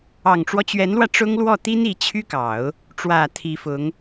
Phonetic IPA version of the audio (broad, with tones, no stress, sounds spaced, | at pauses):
ɑ˨˩ ŋ ʈ͡ʂ w ɔ˦ t͡ɕ ɥ ɛ˧˥ n l w ä˧ ʈ͡ʂ ʊ˥ ŋ l w ɔ˥˩ t̪ i˥ n i˧˥ t͡ɕʰ y˥ k ɑ˨˩˦ ʊ̯ | ʈ͡ʂ w ä˨˩ t̪ʰ i˧˥ f ʊ˧˥ ŋ